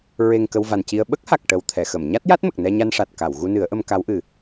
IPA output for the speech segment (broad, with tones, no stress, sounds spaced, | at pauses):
ɹ e˨˩ ŋ k ə˧ w v a˨˩ n c i˧ ə̯ ɓ ə˦˥ k̚ h a˨˩ k̚ ʈ ə˨˩ w t̪ʰ ɛ˨˩˨ x ə˨˩˨ m ɲ a˦˥ t̚ j a˦˥ t̚ m ə˨˩ k̚ n ɛ˧ ɲ a˧ n ʂ a˨˩ t̚ k a˨˩˨ w ɣ u˧ n ɨ˨˩˦ ə̯ ʔ ə˧ m k a˧˥ w ʔ ɨ˨˩